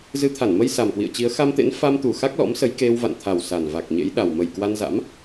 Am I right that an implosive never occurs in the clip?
no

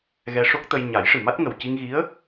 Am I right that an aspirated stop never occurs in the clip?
yes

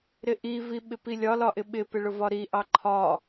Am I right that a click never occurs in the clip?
no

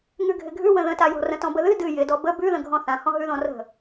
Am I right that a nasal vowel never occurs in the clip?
no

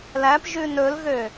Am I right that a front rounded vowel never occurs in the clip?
no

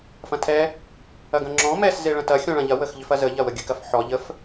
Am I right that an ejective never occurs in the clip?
yes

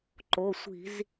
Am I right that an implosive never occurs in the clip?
yes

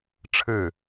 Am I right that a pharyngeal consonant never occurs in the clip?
yes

